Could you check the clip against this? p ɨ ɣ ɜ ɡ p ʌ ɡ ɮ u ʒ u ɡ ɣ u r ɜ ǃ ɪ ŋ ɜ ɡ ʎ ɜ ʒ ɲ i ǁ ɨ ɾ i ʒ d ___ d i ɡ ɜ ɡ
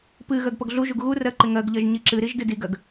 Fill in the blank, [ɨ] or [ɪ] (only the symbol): ɨ